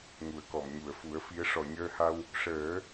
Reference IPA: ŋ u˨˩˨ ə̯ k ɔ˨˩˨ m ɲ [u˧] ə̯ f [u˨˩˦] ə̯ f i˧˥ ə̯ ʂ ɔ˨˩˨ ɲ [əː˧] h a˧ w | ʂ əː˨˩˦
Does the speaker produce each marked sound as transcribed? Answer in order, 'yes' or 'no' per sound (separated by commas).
no, yes, yes